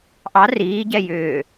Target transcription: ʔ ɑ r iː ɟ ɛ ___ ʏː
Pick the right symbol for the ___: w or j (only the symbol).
j